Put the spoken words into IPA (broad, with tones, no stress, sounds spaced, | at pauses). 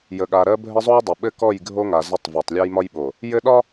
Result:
j ə˨ ɠ a˨ ɾ ɜ˦ bʱ ɘ˦ zˤ o˦ j dˤ o˨ ɓ ɘ˦ k ɔ˦˨ j ɡʱ o˦ ŋ a˨ z ə˦˨ tˤ v a˨ tˤ lʲ a˦ j m ɒ˦ j ɓ o˨ | j ɘ˦ ɗ ɒ˦